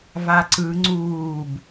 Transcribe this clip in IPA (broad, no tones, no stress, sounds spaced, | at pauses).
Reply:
v a ǀ ɯ ŋ͡ǀ uː b